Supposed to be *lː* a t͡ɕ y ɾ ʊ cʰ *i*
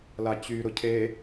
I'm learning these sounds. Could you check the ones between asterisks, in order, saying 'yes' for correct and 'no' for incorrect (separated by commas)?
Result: no, no